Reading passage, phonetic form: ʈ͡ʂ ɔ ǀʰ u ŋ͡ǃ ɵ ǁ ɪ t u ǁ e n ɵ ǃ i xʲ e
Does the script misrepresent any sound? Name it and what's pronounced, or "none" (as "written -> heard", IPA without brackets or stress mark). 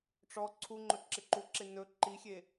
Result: t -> ǃ